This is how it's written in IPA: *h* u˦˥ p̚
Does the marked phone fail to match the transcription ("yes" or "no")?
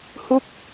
no